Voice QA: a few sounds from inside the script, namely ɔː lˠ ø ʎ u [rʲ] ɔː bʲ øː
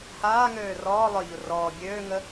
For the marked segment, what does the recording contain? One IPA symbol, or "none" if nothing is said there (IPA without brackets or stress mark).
r